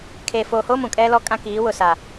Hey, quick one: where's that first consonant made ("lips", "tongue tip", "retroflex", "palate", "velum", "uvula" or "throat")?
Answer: velum